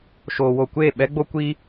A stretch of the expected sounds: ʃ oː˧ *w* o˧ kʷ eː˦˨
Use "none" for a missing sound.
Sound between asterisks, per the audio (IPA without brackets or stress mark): w